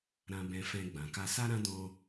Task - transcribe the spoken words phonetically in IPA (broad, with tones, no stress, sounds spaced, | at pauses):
ɾ ã˧ b ɛ̃˧ f ɛ̃˧ ɡ͡b ã˨ k a˧ s a˦ ɾ ã˦ d ɔ̃˦